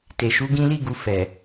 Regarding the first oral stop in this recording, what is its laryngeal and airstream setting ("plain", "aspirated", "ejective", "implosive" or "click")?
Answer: plain